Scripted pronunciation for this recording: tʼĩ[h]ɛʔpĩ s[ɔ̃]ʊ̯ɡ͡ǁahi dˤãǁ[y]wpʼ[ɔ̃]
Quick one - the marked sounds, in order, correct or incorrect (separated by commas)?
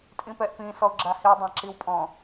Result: incorrect, incorrect, incorrect, correct